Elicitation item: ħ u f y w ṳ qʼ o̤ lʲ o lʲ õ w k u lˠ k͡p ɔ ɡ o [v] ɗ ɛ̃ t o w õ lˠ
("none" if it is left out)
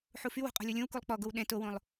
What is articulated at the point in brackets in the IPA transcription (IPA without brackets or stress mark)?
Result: w